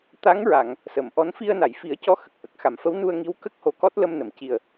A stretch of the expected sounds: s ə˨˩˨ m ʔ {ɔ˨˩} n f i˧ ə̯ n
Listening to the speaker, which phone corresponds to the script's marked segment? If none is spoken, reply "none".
ɔ˧˥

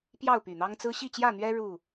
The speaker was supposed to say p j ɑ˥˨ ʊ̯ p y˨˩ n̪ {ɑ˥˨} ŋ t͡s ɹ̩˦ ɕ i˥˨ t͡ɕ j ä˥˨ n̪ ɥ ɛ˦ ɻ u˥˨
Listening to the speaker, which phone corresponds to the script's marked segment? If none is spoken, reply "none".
ɑ˦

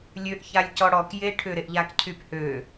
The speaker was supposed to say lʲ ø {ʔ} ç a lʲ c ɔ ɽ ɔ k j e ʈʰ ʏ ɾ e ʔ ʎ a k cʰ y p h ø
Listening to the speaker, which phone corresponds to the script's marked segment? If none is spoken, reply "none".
ʔ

